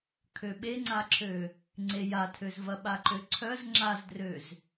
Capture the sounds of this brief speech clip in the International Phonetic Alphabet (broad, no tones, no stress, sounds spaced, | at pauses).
kʰ ø ɓ e ŋ͡ǀ a ǁʰ ø | ŋ͡ǀ e j a tʰ ø z v ɐ ɓ a ǃ ø ǀʰ œ z ŋ͡ǁ a z d r ø z